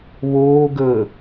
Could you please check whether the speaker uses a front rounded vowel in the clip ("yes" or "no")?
no